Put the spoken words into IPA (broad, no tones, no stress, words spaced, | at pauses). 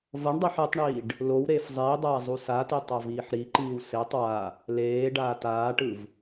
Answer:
vʌɳdˤeħ etˤɳiːɖ | low ɾeːfzˤiːdˤaː zˤusate tˤaviːħɾiǃiːw setˤ wa | leː ɖaːtaːʈɯv